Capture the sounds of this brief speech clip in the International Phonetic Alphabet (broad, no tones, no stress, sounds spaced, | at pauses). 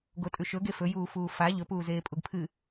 ɡ o tʼ ʉ ʃ ɵ ɡ e f ɵ j uː f uː f a ʎ ɵ p uː z eː pʼ u ɡ pʰ ɨ